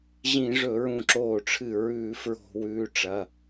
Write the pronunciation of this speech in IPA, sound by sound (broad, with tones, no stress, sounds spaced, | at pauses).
ʑ ĩ˧˩˧ ʐ ɵ˧˩˧ ɹ ũ˧˩ ǁ oː˧˩ ʈ͡ʂʰ ɨ˧˩ ɹ ʉː˧˩˧ f ɹ o̤˧˩˧ w ʉː˩˧˩ ʈ͡ʂ ɐ˩˧˩